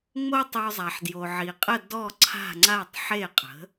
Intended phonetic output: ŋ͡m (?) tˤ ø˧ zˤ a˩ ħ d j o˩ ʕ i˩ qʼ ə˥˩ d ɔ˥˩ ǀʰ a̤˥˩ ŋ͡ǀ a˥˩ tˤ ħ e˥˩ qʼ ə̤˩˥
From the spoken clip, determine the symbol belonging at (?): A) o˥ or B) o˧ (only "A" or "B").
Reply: A